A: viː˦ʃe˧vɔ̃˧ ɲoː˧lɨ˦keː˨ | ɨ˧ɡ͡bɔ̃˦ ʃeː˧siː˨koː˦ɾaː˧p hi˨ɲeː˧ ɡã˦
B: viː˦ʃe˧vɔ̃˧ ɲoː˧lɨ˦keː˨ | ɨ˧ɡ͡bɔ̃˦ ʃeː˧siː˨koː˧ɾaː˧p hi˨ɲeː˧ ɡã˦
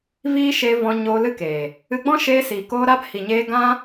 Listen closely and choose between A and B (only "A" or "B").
B